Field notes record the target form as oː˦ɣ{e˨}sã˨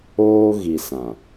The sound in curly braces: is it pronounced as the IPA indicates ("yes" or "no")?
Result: no